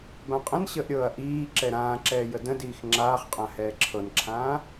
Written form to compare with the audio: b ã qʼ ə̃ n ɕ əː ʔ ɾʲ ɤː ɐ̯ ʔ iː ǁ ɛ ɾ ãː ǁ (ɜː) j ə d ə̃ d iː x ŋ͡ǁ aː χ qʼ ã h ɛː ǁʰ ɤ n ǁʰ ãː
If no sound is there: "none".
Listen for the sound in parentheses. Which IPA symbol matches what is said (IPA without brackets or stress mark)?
ɛː